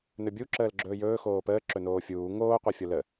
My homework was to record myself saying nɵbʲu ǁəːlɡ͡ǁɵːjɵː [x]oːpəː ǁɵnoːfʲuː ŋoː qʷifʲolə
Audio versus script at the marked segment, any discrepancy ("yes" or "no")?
no